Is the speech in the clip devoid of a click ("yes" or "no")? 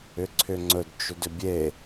no